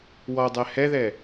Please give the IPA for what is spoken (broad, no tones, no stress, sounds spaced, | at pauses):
w ɔ dˤ ɛ h ɛ ð ɛ